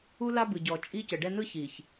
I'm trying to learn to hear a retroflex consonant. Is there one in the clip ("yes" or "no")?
yes